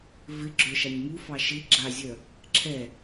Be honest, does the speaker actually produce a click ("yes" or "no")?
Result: yes